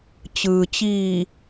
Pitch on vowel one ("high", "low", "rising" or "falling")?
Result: low